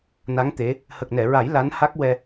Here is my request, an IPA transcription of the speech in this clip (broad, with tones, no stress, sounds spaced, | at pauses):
n a˧˥ ŋ t̪ e˧˥ | h ə˨˩ k̚ n ɛ˨˩˨ ɹ a˨˩˦ j l a˧˥ n h a˦˥ k̚ w ɛ˧